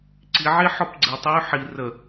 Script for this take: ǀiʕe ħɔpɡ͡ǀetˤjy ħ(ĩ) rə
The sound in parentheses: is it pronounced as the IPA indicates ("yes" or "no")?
no